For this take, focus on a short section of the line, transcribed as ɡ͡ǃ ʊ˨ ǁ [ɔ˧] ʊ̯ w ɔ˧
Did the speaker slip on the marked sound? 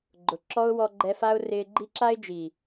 yes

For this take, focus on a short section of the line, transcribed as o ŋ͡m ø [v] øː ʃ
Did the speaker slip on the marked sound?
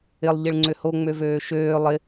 no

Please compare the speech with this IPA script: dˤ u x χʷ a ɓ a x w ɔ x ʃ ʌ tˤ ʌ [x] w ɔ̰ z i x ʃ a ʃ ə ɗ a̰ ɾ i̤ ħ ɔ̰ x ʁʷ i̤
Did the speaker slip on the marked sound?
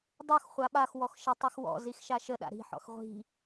no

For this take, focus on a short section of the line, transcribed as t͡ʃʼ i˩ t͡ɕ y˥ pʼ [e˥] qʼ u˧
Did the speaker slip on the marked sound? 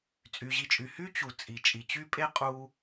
no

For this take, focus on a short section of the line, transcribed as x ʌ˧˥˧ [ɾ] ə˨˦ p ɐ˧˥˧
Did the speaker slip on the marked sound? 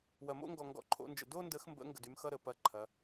no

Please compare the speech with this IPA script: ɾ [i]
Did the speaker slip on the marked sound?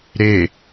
yes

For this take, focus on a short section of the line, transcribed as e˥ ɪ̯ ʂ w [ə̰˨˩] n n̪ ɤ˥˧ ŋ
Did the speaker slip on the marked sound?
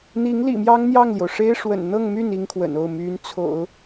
no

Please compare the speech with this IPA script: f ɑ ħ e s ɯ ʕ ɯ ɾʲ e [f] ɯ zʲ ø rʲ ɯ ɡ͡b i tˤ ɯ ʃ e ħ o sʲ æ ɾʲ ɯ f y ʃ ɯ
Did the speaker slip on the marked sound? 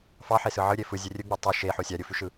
no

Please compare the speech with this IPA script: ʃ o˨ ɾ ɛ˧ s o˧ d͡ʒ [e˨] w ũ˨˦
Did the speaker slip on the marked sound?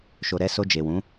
no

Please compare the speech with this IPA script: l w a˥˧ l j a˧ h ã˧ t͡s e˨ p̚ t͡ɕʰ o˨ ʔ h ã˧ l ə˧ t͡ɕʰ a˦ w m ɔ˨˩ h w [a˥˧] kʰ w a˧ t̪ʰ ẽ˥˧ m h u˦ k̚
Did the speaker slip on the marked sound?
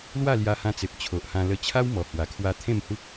yes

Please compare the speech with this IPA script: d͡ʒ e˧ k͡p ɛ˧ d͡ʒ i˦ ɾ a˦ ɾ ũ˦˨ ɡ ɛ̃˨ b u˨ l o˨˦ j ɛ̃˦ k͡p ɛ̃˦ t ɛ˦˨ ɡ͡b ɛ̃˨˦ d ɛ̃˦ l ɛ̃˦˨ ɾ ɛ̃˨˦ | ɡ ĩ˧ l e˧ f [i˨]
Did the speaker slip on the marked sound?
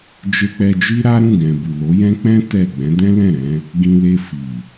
no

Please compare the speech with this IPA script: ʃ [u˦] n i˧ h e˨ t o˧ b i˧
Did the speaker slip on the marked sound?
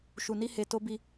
yes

